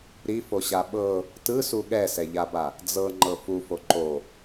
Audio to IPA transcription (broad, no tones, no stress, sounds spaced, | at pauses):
ɾ i f o ɕ a ɓ ɤ | t ɯ s u ɠ ɛ s ɛ ʎ a b a | d͡z ɤ ŋ͡ǃ ɤ f u f o ǃ o